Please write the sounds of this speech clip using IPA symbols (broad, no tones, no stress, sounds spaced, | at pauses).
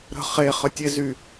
ɾ ə̤ χ e χ ə tʲ e z y